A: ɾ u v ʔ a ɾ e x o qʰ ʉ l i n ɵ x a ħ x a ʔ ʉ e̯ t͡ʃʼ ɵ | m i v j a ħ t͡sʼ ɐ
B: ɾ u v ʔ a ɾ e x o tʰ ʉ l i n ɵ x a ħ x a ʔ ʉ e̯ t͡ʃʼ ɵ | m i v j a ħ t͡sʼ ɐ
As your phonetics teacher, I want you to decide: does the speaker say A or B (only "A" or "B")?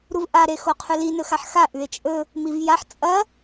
A